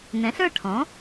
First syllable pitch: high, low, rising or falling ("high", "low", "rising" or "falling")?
rising